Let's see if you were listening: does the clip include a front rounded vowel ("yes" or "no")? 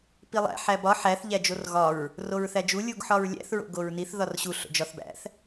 no